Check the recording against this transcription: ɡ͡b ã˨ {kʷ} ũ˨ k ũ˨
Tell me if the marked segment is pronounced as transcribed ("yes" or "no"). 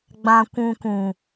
yes